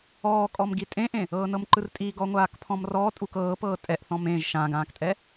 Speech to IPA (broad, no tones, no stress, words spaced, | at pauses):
ɔː kʼɔmɡitʼẽʔẽ | ɤːnɤmǃɯrtʼi ɡɔŋʷaːkpʰɔ̃mrɔː tʼukɤːpɤː tʼɛʔ θɔ̃mẽʒ ʃãɡãːktʼɛ